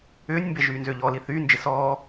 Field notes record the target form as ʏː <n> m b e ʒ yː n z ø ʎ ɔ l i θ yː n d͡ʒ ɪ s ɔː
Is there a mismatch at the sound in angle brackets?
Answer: yes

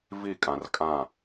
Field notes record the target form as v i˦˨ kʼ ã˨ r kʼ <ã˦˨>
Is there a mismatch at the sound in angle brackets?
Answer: no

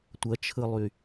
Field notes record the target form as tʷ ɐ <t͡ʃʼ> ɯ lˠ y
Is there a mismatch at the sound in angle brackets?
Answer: yes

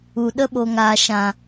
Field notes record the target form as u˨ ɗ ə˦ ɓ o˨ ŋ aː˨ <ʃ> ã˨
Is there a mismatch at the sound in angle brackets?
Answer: no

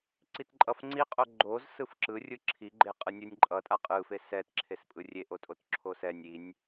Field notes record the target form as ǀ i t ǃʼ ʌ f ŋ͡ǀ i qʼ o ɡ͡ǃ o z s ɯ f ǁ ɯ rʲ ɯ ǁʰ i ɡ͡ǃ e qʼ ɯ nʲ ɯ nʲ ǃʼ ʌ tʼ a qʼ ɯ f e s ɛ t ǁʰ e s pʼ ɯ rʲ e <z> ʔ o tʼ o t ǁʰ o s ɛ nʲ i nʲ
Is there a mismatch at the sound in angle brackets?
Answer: yes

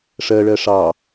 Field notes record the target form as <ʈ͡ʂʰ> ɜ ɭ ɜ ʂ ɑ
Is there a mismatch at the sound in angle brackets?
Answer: yes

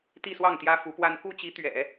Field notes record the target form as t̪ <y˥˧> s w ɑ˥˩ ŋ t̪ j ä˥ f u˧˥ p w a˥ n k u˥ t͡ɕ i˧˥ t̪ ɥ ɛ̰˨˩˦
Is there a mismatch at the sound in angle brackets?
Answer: yes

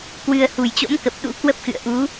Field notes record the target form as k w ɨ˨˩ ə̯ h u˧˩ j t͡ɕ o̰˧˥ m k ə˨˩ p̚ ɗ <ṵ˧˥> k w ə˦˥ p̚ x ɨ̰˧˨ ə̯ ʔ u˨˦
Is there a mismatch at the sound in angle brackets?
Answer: no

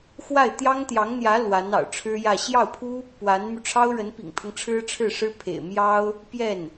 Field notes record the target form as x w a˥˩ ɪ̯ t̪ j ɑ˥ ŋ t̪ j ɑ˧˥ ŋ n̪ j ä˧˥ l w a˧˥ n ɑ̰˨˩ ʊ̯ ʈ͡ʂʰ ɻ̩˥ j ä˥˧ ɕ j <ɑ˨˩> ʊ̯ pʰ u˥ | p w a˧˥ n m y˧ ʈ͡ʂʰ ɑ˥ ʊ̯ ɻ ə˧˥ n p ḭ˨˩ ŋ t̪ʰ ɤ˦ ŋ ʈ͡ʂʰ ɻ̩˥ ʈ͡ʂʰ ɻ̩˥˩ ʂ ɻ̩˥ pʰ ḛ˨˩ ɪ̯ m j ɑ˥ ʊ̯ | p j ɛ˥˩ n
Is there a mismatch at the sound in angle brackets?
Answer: yes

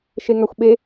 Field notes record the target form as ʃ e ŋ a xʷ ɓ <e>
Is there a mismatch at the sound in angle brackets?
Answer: no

